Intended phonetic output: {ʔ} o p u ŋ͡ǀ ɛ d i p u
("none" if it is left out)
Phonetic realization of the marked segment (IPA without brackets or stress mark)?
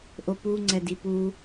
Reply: ʔ